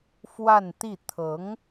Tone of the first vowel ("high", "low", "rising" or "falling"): falling